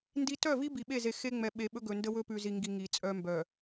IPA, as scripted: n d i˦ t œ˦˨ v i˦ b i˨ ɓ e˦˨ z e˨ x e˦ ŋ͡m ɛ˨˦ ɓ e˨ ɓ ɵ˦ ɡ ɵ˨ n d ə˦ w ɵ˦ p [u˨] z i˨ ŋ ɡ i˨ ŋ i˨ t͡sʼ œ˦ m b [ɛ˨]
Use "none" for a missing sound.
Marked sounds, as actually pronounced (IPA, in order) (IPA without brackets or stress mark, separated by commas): ʉ˨, œ˨